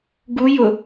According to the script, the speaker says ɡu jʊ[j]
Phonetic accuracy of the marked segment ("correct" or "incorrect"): incorrect